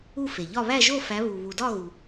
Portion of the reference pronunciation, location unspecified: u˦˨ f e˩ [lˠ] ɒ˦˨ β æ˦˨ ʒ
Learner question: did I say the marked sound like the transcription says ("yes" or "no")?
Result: no